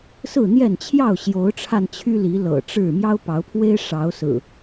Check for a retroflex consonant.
present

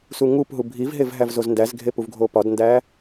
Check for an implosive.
absent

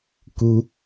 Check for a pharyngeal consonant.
absent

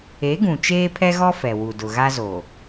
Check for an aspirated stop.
present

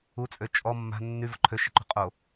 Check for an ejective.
present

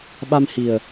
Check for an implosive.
present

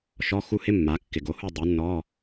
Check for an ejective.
absent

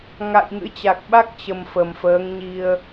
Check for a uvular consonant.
absent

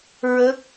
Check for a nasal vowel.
absent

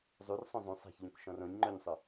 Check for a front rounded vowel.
absent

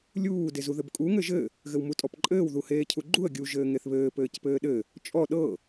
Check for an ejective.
present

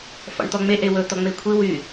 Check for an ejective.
absent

